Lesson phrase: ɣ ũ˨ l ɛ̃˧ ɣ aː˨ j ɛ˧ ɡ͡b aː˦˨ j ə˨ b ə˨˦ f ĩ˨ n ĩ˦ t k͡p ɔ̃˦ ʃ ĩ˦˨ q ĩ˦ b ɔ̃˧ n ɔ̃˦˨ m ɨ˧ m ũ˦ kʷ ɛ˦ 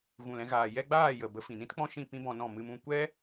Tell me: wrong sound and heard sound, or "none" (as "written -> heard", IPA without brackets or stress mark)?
q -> p